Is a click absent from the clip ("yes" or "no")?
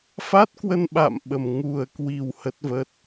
yes